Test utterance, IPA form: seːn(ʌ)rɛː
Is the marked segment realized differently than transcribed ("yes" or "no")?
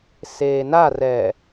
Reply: yes